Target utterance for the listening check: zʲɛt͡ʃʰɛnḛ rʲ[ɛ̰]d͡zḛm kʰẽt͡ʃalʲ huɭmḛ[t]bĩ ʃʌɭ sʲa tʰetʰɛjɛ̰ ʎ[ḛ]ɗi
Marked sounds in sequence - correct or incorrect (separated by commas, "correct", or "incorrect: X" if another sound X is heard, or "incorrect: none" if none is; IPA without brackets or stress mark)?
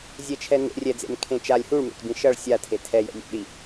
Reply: incorrect: ɛ, correct, correct